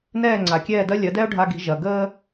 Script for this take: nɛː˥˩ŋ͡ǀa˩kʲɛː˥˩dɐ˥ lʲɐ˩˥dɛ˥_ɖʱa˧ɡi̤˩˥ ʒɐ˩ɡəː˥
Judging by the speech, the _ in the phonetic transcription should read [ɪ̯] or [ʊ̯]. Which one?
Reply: ʊ̯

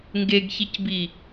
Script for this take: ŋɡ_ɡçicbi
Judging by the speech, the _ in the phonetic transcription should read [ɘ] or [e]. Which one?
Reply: e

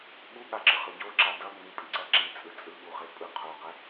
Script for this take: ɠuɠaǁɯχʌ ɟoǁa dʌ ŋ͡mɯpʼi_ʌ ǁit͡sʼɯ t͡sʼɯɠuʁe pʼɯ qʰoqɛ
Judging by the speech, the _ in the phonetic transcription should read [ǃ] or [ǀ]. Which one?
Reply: ǀ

